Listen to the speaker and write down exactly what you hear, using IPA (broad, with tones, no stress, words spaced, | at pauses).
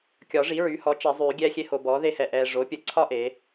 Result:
kʲɒ˨˩˦ʐi˩˥ɹy˩˥hɔ˩˥ t͡ʃɛ˨˩˦zˤyː˨˩˦ ɡʲɛː˦xʲe˦ho˨ bɔː˩˥ðe˦hɛ˨ʔɛː˨ ʐo˩˥pʲə˨˩˦ǀʰɒ˦ ʔe˩˥